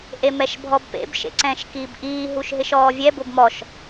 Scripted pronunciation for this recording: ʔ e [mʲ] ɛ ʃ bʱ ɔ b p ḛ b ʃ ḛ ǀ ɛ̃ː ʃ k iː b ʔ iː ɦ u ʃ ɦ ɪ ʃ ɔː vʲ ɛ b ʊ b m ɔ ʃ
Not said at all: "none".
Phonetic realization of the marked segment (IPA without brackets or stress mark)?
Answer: m